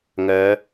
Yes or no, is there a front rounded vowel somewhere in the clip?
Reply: yes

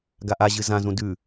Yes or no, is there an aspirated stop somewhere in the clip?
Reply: no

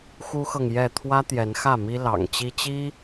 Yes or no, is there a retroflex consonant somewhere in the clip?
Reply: no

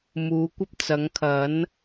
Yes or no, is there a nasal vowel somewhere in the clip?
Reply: no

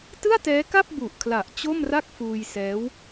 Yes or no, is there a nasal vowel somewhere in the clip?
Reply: no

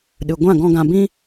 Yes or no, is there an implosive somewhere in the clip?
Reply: yes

